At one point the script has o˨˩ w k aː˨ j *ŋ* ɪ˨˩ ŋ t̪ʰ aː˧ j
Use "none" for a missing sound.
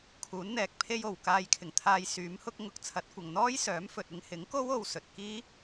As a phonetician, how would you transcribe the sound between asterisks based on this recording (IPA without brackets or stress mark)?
kʰ